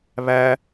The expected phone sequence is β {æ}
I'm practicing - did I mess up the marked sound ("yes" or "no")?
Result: no